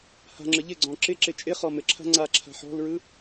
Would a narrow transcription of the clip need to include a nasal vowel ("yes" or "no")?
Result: yes